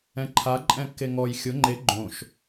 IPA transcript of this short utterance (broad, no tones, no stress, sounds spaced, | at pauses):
ɛ̃ ǃʰ a ǃʼ ɛ̃ kː e ŋ ɔ j xʲ ʊ ŋ͡ǃ e ɡ͡ǃ õ ʃ